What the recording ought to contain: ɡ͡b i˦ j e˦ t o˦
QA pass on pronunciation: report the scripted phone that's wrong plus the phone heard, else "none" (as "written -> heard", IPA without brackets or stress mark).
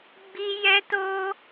e˦ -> ɛ˦